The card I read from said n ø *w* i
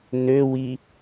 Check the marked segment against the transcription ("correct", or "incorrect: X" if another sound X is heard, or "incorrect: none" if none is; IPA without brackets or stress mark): correct